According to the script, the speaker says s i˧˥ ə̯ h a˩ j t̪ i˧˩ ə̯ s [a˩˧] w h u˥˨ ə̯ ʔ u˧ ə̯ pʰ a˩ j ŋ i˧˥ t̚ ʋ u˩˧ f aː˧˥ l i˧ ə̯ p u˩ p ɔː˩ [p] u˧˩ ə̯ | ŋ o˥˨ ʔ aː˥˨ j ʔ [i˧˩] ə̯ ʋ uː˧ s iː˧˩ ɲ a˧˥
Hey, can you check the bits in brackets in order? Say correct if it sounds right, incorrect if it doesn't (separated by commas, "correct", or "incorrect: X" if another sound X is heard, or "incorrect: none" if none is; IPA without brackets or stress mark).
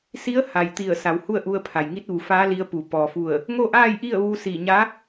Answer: correct, incorrect: f, incorrect: i˥˨